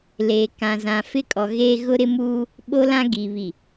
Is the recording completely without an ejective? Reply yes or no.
no